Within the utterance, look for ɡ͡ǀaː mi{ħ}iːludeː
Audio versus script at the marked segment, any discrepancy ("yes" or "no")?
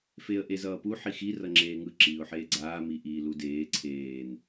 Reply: yes